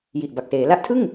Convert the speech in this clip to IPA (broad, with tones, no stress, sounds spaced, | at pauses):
j i˨˩ ʔ b a˨˩ k̚ s eː˩˦ l a˦˥ ʔ tʰ ɯ˥˩ ŋ